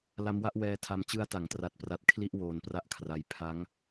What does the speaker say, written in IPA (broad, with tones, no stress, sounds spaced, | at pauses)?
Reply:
l a˦˥ m w a˦˥ ʔ w ɛː˦˥ tʰ a˧ m t͡ɕ ɯ˧ a̯ t a˩˦ ŋ t r a˨˩ t̚ p r a˨˩ t̚ kʰ l i˥˩ ʔ w oː˧ n p r a˥˩ ʔ kʰ r a˧ j pʰ a˦˥ ŋ